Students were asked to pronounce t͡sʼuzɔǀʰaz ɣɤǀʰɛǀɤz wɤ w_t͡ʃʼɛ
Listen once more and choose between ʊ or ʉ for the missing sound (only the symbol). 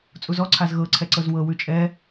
ʉ